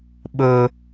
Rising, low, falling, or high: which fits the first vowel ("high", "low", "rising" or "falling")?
high